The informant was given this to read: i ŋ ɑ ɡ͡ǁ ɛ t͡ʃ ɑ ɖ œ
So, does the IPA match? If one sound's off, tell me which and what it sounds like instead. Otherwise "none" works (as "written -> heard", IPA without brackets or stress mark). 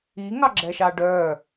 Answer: t͡ʃ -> ʃ